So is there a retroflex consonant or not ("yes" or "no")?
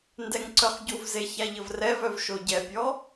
no